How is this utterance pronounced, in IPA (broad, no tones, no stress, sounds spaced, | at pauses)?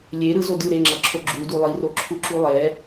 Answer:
lʲ e ɾ ɯ z o d ɯ ɾ e ŋ͡ǁ ʌ ǁʰ o ɡ͡ǁ u d u lˠ i r o ǁʰ u ǁ u lˠ ɛ